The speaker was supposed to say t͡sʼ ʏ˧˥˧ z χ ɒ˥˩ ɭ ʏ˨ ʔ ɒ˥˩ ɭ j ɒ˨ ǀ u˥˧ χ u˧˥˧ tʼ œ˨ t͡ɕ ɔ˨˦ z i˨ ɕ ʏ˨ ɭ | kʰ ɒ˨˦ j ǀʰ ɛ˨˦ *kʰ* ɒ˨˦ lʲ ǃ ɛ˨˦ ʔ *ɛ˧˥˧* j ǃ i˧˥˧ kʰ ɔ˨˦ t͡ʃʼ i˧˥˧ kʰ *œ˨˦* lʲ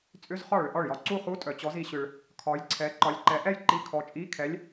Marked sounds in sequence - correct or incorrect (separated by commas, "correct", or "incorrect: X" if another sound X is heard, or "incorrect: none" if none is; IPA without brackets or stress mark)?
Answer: incorrect: ǃ, incorrect: ɛ˥˧, incorrect: ɛ˨˦